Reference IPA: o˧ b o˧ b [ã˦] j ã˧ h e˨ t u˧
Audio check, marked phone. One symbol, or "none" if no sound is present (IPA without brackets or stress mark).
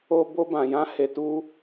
ã˨